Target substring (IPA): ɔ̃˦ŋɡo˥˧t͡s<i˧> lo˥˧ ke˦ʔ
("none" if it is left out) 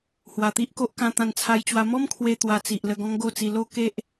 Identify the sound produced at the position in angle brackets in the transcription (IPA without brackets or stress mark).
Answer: i˧